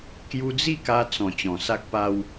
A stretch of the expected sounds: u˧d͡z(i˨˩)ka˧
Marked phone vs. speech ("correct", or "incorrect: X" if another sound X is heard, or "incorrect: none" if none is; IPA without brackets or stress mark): incorrect: i˥˧